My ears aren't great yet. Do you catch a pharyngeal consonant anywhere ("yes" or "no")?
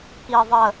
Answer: no